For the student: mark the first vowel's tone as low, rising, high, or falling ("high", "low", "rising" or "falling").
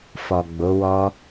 low